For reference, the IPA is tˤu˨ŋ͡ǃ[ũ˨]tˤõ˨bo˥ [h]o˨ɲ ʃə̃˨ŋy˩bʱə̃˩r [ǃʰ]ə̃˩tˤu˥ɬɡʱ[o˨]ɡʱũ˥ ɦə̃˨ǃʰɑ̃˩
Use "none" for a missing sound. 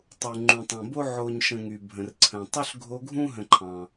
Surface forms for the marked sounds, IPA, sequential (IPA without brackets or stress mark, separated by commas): ũ˨, ʕ, ǀʰ, o˦